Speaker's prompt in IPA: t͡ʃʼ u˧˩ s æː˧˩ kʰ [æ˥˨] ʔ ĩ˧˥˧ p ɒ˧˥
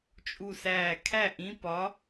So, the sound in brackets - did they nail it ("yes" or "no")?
yes